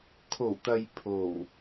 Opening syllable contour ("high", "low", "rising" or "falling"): low